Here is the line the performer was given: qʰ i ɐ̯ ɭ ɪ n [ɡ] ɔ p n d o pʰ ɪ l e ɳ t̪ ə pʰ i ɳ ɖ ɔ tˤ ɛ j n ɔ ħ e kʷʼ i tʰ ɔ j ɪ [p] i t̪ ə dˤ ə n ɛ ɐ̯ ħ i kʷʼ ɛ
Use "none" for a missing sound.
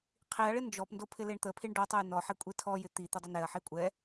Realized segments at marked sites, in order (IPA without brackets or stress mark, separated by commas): d͡ʒ, t̪